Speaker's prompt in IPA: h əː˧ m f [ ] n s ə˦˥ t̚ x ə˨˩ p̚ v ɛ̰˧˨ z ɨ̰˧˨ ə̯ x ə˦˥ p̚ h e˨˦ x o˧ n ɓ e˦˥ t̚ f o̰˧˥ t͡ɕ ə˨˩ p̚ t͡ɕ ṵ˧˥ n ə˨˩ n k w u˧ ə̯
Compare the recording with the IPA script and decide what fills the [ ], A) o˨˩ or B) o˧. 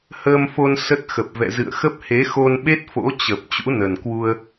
B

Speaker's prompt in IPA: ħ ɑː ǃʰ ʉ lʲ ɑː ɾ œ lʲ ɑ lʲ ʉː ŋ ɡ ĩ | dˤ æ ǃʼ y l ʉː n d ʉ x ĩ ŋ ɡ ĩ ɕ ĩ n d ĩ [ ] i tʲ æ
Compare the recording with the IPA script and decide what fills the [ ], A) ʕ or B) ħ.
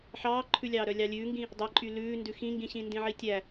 A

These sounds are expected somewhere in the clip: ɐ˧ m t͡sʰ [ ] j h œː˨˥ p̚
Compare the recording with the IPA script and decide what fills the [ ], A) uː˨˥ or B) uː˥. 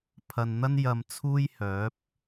B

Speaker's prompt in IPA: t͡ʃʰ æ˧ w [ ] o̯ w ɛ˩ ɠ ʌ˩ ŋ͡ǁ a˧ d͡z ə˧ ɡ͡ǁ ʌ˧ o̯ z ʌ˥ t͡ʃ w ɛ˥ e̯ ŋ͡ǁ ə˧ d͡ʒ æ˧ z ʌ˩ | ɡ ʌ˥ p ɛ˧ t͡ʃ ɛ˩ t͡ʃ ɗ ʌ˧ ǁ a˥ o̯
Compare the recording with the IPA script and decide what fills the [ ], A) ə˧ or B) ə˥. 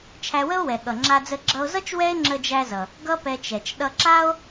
B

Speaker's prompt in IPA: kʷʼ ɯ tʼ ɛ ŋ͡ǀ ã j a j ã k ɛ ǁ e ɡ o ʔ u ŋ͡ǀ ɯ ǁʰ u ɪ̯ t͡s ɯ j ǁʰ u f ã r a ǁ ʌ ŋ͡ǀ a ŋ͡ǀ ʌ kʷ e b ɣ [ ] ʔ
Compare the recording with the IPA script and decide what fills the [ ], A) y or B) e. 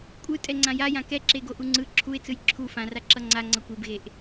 B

